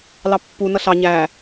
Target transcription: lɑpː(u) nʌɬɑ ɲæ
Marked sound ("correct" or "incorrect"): correct